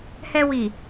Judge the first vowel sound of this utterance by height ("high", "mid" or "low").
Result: mid